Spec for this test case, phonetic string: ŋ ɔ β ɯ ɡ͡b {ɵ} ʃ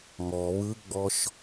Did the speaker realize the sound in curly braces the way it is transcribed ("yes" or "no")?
no